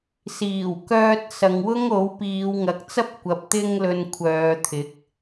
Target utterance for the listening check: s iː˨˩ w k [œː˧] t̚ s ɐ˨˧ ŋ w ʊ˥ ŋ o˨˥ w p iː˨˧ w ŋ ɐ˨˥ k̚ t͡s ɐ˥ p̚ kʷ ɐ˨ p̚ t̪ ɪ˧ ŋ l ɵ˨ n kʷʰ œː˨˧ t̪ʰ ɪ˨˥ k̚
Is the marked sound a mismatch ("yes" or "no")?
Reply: no